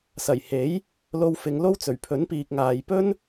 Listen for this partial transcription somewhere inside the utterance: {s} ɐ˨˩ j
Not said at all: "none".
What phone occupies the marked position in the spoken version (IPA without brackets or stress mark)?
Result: s